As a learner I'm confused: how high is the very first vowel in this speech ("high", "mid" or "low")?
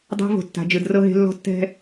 low